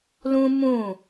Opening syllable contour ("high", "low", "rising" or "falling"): high